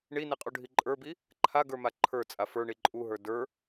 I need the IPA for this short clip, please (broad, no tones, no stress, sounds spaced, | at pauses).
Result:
ɳ i n i qʼ u ɖʱ i ǃʼ ə˞ b i | ǃʰ a ɡ ə˞ m a ǃʰ ə˞ t͡sʼ a f ə˞ ɳ i ǃʼ u ɦ ə˞ d ə˞